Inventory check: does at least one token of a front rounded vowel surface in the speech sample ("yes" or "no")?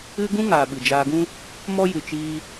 no